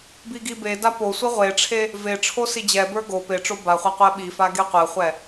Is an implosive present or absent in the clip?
present